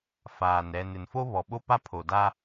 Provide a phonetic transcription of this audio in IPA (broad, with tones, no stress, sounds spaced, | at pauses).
f aː˨ n ɾ ɛ˨ n ɪ˨ n f o˦ β ɔ˨ ɓ o˦ p a˦ pʰ o˨ d a˦